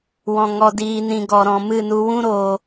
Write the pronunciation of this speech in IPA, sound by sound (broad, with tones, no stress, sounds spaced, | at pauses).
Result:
w ɔ̃˧ ŋ ɔ˧ d iː˧ n ĩ˧ ɡ ɔ˧ ɾ ɔ̃˧ m ɨ˦˨ n u˧ w ũ˦ ɾ oː˧